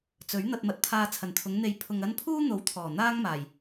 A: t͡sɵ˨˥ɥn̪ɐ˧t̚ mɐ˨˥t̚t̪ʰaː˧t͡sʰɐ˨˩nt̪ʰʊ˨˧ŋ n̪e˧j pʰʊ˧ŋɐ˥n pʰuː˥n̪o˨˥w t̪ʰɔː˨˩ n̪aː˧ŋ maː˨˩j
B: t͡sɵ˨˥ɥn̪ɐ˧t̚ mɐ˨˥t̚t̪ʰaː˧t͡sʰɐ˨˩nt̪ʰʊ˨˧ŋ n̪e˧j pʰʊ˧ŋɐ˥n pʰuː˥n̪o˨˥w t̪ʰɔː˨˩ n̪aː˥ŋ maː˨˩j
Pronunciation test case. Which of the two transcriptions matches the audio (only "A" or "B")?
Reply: B